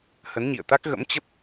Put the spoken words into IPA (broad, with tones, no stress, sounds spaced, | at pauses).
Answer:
h ə˨˦ n ɲ ḭ˧˨ ə̯ t̪ a˦˥ k̚ ɣ ə̰˧˥ m t͡ɕ ə˦˥ p̚